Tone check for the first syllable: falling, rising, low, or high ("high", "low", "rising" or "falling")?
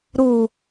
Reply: falling